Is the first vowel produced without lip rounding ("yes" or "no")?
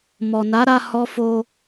no